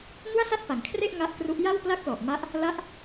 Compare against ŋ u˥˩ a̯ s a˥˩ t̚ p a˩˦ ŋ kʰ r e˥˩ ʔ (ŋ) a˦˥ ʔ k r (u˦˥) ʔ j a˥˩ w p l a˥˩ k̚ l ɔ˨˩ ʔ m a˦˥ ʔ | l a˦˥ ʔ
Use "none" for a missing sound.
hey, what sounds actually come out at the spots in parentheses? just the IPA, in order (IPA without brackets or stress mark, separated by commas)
ŋ, u˦˥